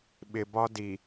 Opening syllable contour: low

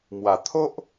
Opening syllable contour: low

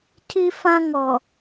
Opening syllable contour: high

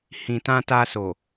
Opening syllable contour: low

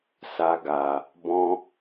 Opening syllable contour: high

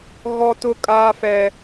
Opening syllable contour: high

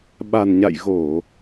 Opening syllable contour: low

